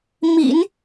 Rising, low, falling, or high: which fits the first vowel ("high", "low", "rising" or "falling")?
low